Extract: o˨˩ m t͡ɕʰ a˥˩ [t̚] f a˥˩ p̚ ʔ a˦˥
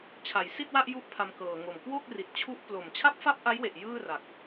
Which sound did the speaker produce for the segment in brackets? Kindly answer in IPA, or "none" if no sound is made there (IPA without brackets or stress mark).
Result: p̚